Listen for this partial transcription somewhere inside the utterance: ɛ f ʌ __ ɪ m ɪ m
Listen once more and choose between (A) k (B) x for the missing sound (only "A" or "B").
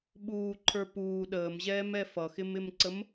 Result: B